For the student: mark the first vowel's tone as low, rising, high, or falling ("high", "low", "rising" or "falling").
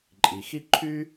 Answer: low